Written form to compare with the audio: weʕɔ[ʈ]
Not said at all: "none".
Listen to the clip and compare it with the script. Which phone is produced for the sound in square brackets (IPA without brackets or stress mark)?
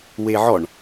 ɳ